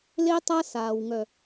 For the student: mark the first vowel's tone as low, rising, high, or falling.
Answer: high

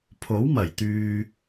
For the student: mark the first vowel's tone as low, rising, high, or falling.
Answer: rising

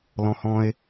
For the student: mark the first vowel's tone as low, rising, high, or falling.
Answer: low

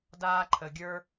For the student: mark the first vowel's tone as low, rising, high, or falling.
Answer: high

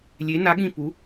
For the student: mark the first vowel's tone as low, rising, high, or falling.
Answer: rising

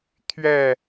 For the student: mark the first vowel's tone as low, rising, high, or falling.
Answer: falling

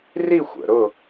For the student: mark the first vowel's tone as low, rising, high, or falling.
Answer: falling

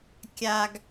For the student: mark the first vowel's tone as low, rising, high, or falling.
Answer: high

